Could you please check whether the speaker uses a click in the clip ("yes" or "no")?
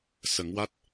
no